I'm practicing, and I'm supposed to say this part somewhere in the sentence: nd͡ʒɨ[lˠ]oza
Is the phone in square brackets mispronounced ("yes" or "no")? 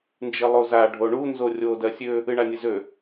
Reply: no